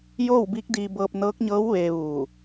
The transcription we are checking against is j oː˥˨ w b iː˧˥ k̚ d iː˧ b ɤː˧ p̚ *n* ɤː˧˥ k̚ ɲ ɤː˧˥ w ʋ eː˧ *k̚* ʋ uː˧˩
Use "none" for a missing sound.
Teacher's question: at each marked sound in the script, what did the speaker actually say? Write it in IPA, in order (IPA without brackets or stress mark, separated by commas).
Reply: n, none